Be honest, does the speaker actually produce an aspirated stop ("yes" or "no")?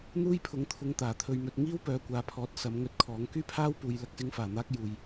yes